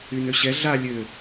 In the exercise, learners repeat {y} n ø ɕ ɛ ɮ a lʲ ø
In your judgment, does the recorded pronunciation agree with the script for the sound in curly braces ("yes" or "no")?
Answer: yes